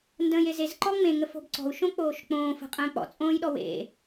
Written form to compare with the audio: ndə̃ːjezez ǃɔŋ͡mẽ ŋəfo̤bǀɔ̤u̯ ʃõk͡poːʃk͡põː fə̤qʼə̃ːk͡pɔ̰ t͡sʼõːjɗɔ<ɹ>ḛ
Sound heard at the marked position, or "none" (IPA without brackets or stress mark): w